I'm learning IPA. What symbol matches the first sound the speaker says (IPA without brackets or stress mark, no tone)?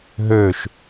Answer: ɦ